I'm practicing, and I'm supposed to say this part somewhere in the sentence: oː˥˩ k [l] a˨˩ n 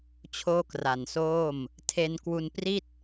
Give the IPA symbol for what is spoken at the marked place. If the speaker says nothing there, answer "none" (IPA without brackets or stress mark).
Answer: r